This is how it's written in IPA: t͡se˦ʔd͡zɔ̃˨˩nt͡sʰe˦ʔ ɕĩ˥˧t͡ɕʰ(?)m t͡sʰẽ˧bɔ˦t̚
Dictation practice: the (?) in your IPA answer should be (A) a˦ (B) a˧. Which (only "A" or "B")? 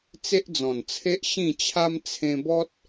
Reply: A